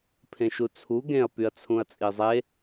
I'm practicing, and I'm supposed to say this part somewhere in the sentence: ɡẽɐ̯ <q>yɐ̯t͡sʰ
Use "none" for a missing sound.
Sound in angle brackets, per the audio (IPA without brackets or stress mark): p